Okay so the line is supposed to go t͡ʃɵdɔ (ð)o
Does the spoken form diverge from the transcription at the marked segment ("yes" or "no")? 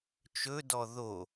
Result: no